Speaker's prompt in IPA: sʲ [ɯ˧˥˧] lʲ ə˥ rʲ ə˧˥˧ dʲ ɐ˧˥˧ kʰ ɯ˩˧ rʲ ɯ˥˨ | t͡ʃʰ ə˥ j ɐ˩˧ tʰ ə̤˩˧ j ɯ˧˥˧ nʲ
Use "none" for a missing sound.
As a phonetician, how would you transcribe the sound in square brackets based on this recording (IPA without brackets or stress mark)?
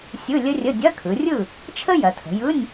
ɯ˧˥˧